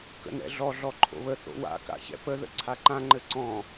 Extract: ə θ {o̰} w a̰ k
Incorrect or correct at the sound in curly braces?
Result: correct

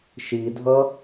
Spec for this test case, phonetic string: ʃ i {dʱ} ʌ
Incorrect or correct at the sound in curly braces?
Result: correct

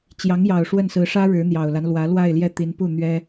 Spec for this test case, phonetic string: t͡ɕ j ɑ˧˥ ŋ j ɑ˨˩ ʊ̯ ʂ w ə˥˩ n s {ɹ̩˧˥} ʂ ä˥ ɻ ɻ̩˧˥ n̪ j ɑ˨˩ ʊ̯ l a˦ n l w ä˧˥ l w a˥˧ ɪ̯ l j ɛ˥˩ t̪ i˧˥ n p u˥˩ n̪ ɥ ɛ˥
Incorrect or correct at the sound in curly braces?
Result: correct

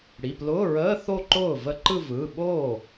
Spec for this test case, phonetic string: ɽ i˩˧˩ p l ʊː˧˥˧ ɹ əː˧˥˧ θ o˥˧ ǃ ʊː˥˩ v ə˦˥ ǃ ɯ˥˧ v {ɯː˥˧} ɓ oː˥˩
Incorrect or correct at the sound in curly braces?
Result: incorrect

